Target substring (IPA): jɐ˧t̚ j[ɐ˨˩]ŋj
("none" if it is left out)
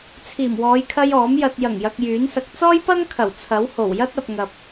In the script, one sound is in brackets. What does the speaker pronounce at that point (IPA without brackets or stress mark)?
ɐ˨˩